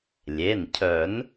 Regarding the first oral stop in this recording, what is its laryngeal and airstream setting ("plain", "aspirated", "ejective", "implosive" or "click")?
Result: aspirated